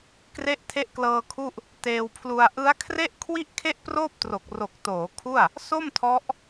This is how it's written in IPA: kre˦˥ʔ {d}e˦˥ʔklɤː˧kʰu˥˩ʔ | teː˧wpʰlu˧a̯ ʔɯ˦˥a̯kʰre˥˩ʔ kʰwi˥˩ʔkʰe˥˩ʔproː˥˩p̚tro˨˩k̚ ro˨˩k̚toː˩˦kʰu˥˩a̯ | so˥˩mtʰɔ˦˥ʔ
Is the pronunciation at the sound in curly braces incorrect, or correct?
incorrect